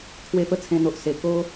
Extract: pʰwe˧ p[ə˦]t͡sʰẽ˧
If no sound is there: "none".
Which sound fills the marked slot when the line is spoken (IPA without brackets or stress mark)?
ə˦